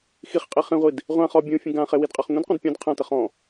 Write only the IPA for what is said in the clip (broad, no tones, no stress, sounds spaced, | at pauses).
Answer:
x i χ qʼ i χ ĩ ʁʷ i d | ʁʷ ã χ ɔ bʲ ũ fʲ ə̃ ɡ ã χ e w i d qʼ a χ ŋʷ ĩ d qʷ ã d pʲ ɔ̃ d qʰ ã t ə χ ɔ̃